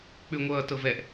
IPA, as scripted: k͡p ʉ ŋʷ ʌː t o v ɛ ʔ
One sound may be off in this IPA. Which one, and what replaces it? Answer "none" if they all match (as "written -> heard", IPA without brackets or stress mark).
o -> ɤ